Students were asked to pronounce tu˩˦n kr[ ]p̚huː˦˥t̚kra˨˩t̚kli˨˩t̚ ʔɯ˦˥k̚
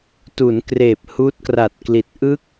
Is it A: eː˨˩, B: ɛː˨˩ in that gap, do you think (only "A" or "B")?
A